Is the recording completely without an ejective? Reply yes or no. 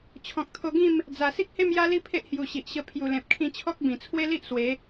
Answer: yes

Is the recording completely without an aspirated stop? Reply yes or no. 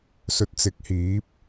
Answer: yes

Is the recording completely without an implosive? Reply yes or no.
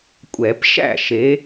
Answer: yes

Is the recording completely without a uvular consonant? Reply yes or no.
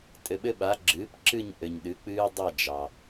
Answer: yes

